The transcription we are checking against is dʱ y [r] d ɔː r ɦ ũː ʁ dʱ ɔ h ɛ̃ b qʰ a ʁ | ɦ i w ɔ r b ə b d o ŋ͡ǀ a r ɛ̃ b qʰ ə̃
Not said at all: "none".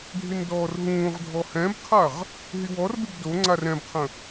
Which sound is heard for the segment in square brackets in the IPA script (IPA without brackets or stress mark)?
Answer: n